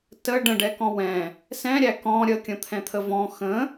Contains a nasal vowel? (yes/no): yes